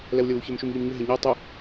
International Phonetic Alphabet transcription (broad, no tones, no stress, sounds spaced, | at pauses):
l ɛ w lʲ ə w u ç ə m ʃ u m ʎ i m ɲ ʏ ɦ e ɲ i w tˤ ʏ